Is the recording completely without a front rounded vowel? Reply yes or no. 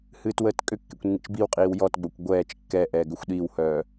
no